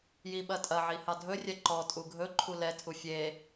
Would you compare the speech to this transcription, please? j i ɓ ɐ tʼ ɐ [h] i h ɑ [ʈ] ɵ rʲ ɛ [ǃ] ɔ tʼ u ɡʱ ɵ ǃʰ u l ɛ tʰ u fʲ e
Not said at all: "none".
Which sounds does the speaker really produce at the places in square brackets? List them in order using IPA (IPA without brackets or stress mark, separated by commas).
ʕ, dʱ, ǃ